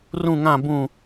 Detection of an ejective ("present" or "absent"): absent